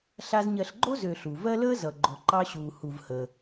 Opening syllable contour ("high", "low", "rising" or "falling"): high